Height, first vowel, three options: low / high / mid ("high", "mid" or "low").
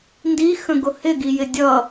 high